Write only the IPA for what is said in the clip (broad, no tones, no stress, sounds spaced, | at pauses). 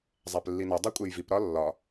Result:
zˤ æ p lː i n o dˤ o kʷʼ e j v i p ɾ ɒ lː ɒ